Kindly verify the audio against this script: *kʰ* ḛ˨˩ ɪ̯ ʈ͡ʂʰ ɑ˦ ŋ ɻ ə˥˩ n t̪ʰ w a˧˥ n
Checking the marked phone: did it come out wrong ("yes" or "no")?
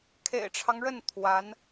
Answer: no